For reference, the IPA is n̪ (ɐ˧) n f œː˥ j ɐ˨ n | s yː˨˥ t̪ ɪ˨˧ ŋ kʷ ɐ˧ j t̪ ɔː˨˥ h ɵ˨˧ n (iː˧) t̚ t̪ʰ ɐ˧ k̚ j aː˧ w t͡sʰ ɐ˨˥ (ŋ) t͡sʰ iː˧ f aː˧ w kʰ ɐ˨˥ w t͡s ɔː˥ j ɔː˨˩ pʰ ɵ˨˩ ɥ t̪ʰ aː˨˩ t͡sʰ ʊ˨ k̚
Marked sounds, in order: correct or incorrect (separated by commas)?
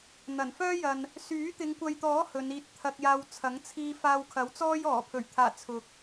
incorrect, correct, correct